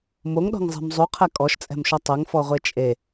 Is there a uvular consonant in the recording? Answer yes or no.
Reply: yes